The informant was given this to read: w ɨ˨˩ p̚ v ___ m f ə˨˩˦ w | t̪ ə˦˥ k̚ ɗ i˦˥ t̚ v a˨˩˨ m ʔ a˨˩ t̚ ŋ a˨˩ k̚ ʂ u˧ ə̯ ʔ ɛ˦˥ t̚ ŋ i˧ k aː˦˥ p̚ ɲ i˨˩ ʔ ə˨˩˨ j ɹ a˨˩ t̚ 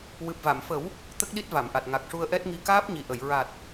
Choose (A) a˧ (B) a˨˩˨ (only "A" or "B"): B